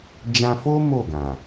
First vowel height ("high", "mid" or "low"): low